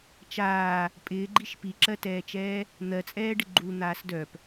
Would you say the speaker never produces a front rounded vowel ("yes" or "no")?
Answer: no